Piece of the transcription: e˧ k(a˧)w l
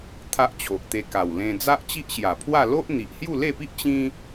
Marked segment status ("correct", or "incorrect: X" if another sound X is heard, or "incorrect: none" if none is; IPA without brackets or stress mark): incorrect: a˨˩